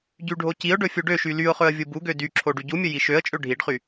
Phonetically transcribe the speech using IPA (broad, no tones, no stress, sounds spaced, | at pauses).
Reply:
ɟ y ɖʱ o c i ʊ̯ ɖ ɵ fʲ u ɖ ø ʃ y l y ʊ̯ χ ɵ ə̯ vʲ u b u ɡ ø d y ǁʰ o ɖ y ɟ u mʲ ɵ j i ʃ ø ə̯ t͡ʃʼ ø ɖʱ i ɖ χ y